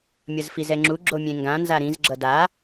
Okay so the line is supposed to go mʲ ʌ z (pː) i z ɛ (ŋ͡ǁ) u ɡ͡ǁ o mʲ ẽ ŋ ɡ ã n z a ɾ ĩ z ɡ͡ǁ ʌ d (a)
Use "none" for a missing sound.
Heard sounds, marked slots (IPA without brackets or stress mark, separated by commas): f, ŋ͡ǁ, a